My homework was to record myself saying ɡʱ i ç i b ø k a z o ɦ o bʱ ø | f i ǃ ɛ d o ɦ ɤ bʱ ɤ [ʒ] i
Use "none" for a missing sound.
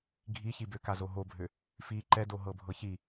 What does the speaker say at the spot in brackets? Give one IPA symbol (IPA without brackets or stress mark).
ç